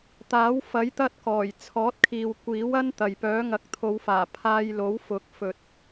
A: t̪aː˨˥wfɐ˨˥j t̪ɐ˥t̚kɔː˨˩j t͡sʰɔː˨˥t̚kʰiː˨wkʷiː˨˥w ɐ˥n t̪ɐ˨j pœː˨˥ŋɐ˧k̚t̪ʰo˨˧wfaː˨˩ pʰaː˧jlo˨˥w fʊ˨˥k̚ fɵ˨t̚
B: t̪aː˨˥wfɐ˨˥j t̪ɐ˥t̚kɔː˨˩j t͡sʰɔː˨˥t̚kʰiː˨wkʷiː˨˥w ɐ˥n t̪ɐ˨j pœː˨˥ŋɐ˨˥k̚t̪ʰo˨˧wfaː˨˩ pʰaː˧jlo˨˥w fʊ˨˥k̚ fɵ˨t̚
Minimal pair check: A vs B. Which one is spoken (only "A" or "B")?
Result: B